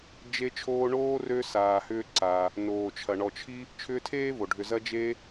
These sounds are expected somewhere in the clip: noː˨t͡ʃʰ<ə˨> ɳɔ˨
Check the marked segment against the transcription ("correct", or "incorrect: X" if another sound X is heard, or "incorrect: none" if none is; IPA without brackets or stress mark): incorrect: ɐ˨